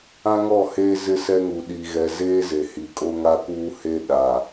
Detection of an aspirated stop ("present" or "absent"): absent